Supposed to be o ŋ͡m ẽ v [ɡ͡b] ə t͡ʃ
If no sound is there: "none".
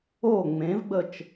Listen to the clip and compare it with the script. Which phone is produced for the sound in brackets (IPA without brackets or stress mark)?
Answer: ɡ͡b